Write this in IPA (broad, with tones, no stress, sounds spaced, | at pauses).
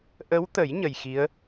ʔ ə˧˥ w t̪ ə˨˩˦ j ɲ ə˨˩ j x i˧˥ ə̯